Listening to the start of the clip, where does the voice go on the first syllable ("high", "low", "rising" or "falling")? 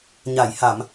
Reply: low